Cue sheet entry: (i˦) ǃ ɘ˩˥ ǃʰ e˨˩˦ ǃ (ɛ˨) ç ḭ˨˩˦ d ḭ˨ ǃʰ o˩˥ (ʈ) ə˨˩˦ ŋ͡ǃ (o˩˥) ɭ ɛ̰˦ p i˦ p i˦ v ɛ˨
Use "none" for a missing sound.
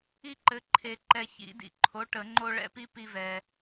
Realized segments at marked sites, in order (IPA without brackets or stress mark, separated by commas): i˦, ɛ˨, ʈ, o˦